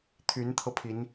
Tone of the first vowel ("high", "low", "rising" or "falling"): rising